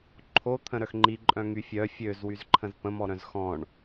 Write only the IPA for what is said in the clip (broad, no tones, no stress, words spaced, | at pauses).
ǃʰo t̪ʰə̃ɾœxŋ͡ǃiǃʼœ̃ ŋyfʲœ fʲøzwyzǃʰə̃z pə̃mɔɾœ̃z xɔ̃ɳ